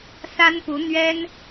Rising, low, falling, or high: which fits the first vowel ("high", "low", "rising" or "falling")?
high